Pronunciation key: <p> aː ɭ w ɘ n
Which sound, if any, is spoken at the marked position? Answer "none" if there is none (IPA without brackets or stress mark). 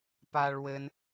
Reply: p